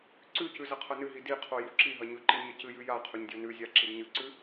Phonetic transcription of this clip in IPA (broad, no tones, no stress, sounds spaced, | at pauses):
ǀ ʉ c ʉ z ɐ qʰ ɐ n ɨ ɦ i d i qʰ o j u ǁ i ɦ ɐ ɲ ɵ ǃ i ɲ ɐ c ɨ j ʉ j a qʰ ɵ ɲ dʲ o n ʉ zʲ a ǁ i d ɲ ɨ ǀ ʉ